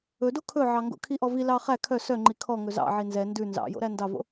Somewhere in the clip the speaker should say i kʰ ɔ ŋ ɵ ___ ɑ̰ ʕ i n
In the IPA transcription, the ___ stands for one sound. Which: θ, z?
z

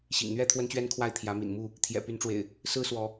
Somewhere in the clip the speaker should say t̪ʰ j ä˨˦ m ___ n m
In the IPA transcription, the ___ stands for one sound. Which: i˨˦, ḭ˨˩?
ḭ˨˩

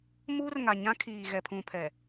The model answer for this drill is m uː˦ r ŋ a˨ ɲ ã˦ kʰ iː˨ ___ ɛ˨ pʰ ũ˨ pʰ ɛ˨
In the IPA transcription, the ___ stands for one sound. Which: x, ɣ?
ɣ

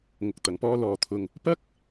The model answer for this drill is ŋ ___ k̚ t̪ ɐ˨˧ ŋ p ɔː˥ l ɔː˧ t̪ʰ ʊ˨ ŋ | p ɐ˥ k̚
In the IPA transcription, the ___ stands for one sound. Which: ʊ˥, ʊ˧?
ʊ˧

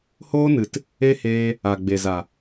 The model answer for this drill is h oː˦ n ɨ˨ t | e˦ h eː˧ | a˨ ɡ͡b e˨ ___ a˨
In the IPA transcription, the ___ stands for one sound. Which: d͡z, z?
z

